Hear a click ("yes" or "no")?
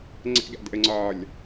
yes